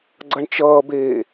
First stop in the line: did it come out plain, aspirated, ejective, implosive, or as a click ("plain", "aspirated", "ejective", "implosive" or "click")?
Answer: click